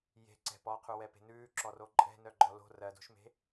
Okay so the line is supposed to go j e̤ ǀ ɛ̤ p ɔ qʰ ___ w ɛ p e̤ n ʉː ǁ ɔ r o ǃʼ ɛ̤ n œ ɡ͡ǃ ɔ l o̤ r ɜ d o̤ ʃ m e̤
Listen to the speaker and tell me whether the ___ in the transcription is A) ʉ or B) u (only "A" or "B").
B